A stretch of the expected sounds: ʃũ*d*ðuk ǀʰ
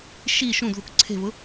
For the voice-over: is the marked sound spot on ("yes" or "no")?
yes